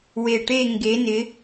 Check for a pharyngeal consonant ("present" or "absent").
absent